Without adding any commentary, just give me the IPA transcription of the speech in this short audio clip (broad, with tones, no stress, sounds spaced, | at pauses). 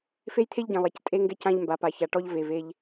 f e˦ j t̪ʰ e˦ ʎ ɟ ɛ̃˨ lˠ ɛ˨ c tʼ e˦ ŋ ɡ ɛ˦ c ã˦ ʎ m b a˨ p a˨ ç a˨ ʈ ɔ˦ ʎ v e˨ v e˦ ʎ